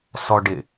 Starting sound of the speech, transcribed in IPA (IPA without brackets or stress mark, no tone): s